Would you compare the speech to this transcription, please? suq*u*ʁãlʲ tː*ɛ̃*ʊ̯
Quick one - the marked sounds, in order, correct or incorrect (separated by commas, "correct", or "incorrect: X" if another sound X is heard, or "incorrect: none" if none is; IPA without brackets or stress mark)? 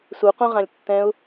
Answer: incorrect: ũ, correct